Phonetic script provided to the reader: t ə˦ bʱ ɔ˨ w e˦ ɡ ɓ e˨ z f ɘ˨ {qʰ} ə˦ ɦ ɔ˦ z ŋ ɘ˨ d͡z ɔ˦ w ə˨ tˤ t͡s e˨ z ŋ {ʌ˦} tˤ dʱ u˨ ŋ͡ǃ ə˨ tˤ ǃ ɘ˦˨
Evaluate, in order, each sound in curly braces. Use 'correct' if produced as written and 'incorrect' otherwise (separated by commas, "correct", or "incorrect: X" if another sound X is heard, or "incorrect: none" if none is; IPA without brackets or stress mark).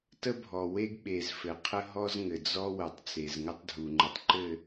correct, incorrect: ə˦